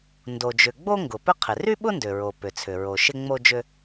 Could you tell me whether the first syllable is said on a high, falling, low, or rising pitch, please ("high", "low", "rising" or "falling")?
low